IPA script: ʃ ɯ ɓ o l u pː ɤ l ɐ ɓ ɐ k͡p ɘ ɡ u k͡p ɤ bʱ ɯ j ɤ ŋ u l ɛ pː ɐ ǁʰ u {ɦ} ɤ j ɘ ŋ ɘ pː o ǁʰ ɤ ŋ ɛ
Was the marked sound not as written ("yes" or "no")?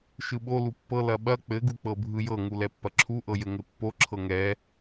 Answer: yes